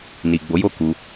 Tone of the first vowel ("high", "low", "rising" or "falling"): low